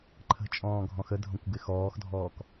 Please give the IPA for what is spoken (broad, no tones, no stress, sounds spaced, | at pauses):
ǃʰ ə̤ t͡ʃʼ ɔ̃ː ɡʱ ɔ̃ x ə dʱ õ kʷ ɡ ɪ x ɔː x dʱ ɔː k